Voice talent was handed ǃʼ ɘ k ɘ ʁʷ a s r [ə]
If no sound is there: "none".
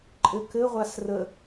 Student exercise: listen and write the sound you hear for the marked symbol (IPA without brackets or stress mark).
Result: ə